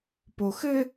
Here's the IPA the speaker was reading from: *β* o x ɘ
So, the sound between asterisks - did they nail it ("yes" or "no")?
no